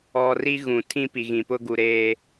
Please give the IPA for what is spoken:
ɔ˨ r i˦ ɣ ũ˨ tʰ ĩ˦ p i˨ ɣ ĩ˨ p ʊ˦ ɡ u˨ ɾ eː˦

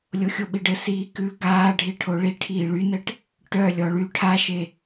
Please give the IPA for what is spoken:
lʲ o xʲ o ɓ i ɖ ɘ s iː k ʉ ɡ aː ɖʱ i ʈʰ o ɭ i ʈʰ iː ɭ y n ɘ ʈ | ʈ œ lʲ ɔ ɭ y ʈʰ a ʃ e

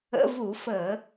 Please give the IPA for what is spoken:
ə̰˧˥˧ v u˧˩˧ f əː˧˩˧

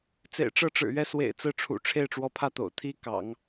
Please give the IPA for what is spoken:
t͡s ḛ˨˩ ɪ̯ ʈ͡ʂ ɤ˥˩ ʈ͡ʂ ɻ̩˨˩ ɥ ɛ˥˩ s w ḛ˨˩ ɪ̯ t͡s ɹ̩˥˩ ʈ͡ʂʰ ṵ˨˩ ʈ͡ʂʰ e˥˩ ɪ̯ ʈ͡ʂ w ɔ˧˥ pʰ ä˥˩ t̪ o̰˨˩ ʊ̯ t̪ʰ i˥ k ɑ̰˨˩˦ ŋ

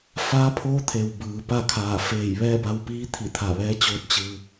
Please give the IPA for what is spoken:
f aː˧˥ pʰ oː˧˥ t̪ʰ e˩ w b ɯː˩ p a˥˨ kʰ aː˧˩ f eː˧˩ j ʋ ɛː˥˨ b a˧ w p iː˧˥ t̪ʰ i˧˩ t̪ʰ a˧˩ ʋ ɛː˧˥ t͡ɕ oː˧ t̚ t͡ɕ ɯː˧

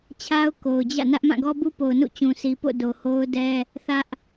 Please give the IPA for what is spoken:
t͡ɕʰ a˦ ʊ̯ k o˨ ʊ̯ d͡ʑ ä̰˦˨ n ä˦ ʔ m ã˦˨ ɡ ɔ˦ b u˦ p o˨ ʊ̯ n ṵ˦˨ t͡ɕ ũ˨ sʰ i˨ p o̰˦˨ d o˨ h o˦ ʊ̯ d ɛ˦ | θ ä˦ ʔ

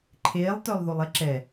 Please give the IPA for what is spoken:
ǃʰ eː lˠ t œ lˠ ð o lˠ ɛ ǁ ɛ

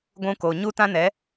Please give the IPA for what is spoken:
ɡʷ ũ˧ k o˨ ɲ u˦ t ã˦ n ɛ˨˦

